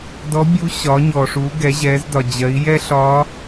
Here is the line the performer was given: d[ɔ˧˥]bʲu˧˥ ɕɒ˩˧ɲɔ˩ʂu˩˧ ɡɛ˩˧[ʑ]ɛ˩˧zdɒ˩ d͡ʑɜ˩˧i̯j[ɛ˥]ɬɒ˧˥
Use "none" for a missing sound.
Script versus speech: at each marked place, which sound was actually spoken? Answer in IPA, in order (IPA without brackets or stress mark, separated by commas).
ɔ˧˥, ʑ, ɛ˥